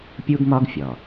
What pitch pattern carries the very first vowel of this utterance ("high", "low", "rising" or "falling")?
high